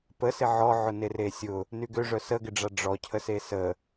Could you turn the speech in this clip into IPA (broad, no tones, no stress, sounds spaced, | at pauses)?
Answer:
p ə s ɪ ʕ ɔ ʕ ʊ n e r e sʲ ʊ | n y ɡ ø ʐ œ s ə ɡ ɪ ɖ͡ʐ a ɖ͡ʐ ɔ cʰ ə s e s ə